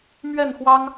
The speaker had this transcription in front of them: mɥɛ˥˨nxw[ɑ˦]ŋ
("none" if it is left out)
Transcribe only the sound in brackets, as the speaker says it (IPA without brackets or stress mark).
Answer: ɑ˦